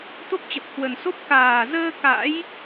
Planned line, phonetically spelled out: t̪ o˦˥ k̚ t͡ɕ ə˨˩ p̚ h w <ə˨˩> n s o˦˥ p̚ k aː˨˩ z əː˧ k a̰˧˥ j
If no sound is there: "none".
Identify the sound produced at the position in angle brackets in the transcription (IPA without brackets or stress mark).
ə˨˩